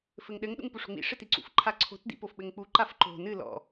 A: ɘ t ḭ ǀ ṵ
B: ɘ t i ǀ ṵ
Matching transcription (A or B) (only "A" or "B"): B